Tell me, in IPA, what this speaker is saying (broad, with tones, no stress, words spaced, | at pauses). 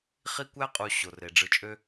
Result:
χi˦ kʷæ˦qʼu˨ ɕo˩re˩ɖ͡ʐɯ˨t͡ʃʼø˦